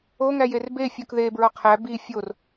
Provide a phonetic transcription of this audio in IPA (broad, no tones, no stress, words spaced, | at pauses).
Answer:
o ŋæjerbe fʲukðe bɹɒqʰæ bi fʲor